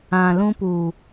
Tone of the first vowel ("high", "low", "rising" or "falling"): low